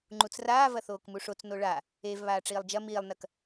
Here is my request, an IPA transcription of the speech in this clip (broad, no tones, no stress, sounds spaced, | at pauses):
ŋ͡ǃ u t͡s r aː v ɐ θ oː k m u ʂ o t͡s n o ɭ a | e v β aː ʈ͡ʂ iː lˠ d͡ʒ ɐ m iː lˠ n ɐ k